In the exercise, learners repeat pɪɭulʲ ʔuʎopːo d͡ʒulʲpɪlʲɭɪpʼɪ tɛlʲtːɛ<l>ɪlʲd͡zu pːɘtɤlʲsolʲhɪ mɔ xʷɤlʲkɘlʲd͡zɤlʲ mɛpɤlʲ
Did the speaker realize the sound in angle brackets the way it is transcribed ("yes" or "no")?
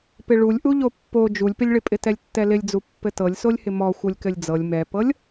yes